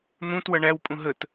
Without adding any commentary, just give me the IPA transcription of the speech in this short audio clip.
n̪ ũ t w ʌ ɳ æ w pʼ ũ ɦ ə t

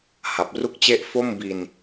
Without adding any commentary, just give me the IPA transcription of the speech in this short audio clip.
h a˨˩ p̚ r u˥˩ k̚ t͡ɕ e˥˩ ʔ f o˥˩ m b i˧ n

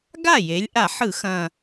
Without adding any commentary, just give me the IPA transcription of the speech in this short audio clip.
ɡ a˥˩ j e˩˧ lʲ ʔ a˧˩˧ ħ ɯ˧˩˧ x ɐ̃˨˩

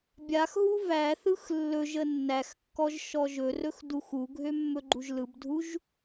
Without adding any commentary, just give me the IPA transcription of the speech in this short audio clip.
bʲ a x ɦ u v æ θ ɯ x lː ɵ ʒ ə nː æ x kː ɔ ʒ ʃ ɔ ʒ ɵ r ɵ x d u x u ɡʱ ø mː ɵ ɡ͡ǃ u ʒ l ɯ b dʱ u ʒ

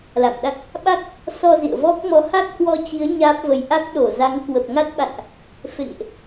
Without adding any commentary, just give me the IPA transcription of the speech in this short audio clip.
l a̰˧˨ m ɗ a˦˥ k̚ | ɓ a˦˥ k̚ | s ɔ˧ z ḭ˧˨ ə̯ v ɔ˦˥ k̚ m ɔ˨˦ h a˦˥ k̚ h w ɔ˧ t͡ɕ i˨˦ ə̯ ɲ aː˦˥ p̚ v ə˧ j ʔ a˦˥ k̚ ɗ o˧˩ z a˨˦ ŋ k w ə˨˩ p̚ ŋ a˦˥ t̚ ɓ a̰˧˨ n ʔ | f ḛ˧˨ ŋ ʔ

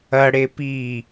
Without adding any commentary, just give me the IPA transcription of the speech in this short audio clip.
ɐ ɽ e p iː

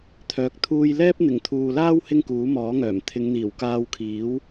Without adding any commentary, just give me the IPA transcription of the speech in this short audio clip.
t̪ʰ œː˨ k̚ t̪ʰ uː˧ j l ɛː˥ p̚ n̪ ɪ˨˩ ŋ t̪ʰ uː˨ l aː˥ w h ɪ˥ ŋ k uː˨˥ m ɔː˨˥ ŋ œː˨˩ m t̪ʰ ɪ˨˧ ŋ n̪ iː˨˩ w k aː˧ w kʰ iː˨˥ w

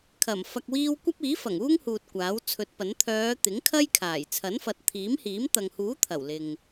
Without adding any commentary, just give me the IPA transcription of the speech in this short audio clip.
kʰ ɐ˨˩ m f ɐ˧ k̚ w iː˥ w kʷ ɐ˥ p̚ iː˨˥ f ɐ˨˩ ŋ uː˥ ŋ h uː˨ t̚ kʷ aː˨˥ w t͡sʰ ɵ˨˥ t̚ p ɐ˨˥ n t̪ʰ œː˨˧ t̪ ɪ˨˥ ŋ kʰ ɐ˥ j kʰ aː˨˩ j t͡sʰ ɐ˨˥ n f ɐ˨˥ t̚ t̪ʰ iː˨˥ m h iː˨˥ m t̪ ɐ˨ ŋ h uː˨˥ t̪ʰ ɐ˨˩ w l ɪ˨ ŋ

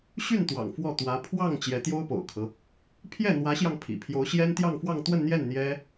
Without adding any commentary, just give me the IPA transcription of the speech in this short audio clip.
ɕ y˥˩ n t̪ w ɑ̰˨˩ ŋ f w ɔ˥˩ t̪ w ä˧˥ pʰ w ɑ˥˩ ŋ t͡ɕ j ɛ˧˥ t̪ j o˥ ʊ̯ p o̰˨˩ ʊ̯ kʰ ɤ˦ | pʰ j ɛ˥˩ n̪ w ä˧˥ ɕ j ɑ˧ ŋ pʰ ḭ˨˩ pʰ j o˧˥ ʊ̯ ɕ j ɛ˥ n t̪ j ɑ˥˧ ŋ f w ɑ˥˧ ŋ t̪ w ə˥˧ n n̪ j ɛ˥˩ n n̪ j ɛ˥

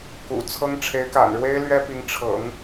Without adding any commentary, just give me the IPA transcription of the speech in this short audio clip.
k ṵ˨˩ t͡sʰ ɤ˥ ŋ ʈ͡ʂʰ e˧˥ ɪ̯ k a̰˨˩ n ɻ w e˥ ɪ̯ l ɥ ɛ˥ p i˧˥ ŋ ʈ͡ʂʰ ɤ̰˨˩˦ ŋ

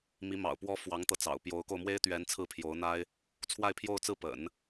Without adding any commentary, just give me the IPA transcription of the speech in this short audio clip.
m i˧˥ m ɑ̰˨˩ ʊ̯ p w ɔ˥ f w ɑ˧˥ ŋ t̪ ɤ˧ t͡s ɑ̰˨˩ ʊ̯ p j o˧˥ ʊ̯ k o˧ ʊ̯ m w e˥ ɪ̯ t̪ ɥ ɛ˧˥ n t͡sʰ ɹ̩˥˩ pʰ j o˧˥ ʊ̯ n̪ a˥ ɪ̯ | t͡sʰ w a˥˧ ɪ̯ pʰ j o˥˧ ʊ̯ t͡s ɹ̩˥˩ p ə̰˨˩˦ n

